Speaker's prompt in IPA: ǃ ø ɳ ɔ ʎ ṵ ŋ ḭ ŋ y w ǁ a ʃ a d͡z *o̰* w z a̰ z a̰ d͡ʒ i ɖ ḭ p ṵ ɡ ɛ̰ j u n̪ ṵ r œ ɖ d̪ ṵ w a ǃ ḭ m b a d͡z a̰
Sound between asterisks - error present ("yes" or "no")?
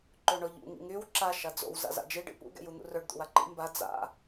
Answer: no